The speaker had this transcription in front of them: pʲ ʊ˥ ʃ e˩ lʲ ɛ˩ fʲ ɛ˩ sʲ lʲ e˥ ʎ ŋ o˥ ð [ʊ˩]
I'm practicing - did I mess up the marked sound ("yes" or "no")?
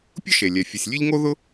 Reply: yes